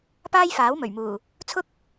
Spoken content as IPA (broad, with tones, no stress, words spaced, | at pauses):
paː˥jfaː˨˥wmɵ˨˩ɥmuː˨˩ | t͡sʰʊ˥k̚